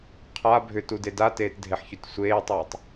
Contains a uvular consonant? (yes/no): yes